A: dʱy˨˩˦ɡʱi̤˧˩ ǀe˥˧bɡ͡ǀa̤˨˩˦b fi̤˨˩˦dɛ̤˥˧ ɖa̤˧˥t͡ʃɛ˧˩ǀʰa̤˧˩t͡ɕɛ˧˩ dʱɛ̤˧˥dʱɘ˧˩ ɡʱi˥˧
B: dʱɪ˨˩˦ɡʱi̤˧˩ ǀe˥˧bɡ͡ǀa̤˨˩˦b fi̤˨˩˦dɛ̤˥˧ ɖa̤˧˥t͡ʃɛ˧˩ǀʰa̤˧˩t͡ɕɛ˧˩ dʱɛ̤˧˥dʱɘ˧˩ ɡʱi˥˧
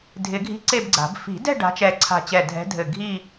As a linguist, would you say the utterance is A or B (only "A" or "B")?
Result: B